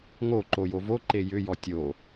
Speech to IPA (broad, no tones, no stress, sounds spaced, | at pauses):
ŋ o ǃ o j o v o ǃ e j ʏ j ɔ tʲ o